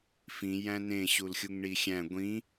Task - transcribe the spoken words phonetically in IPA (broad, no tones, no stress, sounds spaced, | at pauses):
f ĩ j æ̃ n ẽ ɕ u l xʲ u ŋ ɳ i xʲ æ̃ ɡʷ ĩ